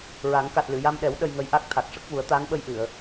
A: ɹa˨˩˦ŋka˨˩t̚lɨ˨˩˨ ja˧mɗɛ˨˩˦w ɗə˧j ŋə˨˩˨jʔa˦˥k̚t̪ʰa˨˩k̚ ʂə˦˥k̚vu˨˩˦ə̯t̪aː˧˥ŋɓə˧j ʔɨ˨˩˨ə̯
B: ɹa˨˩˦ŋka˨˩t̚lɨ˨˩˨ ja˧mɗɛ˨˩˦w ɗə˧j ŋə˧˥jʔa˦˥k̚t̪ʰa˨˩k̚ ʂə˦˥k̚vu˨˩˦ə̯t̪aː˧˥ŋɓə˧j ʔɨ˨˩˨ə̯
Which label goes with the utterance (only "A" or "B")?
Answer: B